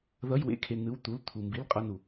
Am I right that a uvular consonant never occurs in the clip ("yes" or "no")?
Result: no